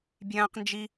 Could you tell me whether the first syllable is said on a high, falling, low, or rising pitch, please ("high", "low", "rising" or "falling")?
high